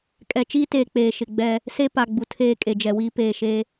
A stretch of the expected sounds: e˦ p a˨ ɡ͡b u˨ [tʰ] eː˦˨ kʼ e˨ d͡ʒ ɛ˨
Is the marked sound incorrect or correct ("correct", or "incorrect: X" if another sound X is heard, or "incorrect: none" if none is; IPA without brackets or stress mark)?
correct